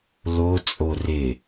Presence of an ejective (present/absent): present